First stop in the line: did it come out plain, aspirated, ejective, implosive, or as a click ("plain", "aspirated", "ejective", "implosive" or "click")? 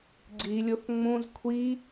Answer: click